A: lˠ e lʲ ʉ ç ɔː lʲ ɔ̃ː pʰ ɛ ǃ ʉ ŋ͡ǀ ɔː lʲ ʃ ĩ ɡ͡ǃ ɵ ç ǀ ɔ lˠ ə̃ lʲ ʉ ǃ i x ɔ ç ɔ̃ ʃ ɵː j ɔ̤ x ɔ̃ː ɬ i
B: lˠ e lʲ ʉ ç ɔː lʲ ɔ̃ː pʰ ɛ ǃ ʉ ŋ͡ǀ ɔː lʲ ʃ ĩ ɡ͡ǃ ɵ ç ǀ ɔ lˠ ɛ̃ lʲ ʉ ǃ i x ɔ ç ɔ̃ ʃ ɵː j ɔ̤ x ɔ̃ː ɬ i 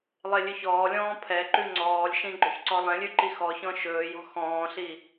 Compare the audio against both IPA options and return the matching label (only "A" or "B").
B